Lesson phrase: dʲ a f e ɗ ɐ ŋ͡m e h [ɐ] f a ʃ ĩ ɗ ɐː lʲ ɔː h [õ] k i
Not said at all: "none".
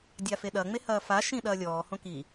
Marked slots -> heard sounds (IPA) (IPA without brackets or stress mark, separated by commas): ɐː, õ